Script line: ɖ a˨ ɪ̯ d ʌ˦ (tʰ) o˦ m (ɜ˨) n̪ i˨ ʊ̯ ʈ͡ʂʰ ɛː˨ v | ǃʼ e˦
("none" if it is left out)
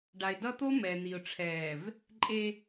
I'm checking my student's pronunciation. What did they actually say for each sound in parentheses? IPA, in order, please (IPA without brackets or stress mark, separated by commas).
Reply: t̪, ɛ˨